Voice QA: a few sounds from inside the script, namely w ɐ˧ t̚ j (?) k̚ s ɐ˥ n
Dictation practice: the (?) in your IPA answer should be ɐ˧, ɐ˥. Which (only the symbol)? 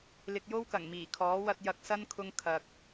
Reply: ɐ˧